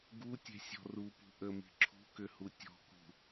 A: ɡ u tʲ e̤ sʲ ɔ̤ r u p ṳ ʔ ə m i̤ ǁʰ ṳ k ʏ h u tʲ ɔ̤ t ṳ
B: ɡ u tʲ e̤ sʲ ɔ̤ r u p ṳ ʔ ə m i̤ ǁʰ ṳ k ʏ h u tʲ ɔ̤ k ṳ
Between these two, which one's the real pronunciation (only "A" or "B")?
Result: B